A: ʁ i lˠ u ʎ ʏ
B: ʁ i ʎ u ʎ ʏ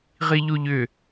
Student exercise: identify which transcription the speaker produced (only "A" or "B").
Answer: B